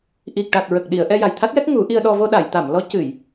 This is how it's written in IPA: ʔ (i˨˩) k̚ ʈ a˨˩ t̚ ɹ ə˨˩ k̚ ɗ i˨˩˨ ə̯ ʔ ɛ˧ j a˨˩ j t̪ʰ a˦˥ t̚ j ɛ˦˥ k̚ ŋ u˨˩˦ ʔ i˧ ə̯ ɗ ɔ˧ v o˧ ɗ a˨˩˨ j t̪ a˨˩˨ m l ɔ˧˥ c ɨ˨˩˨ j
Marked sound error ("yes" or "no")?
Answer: no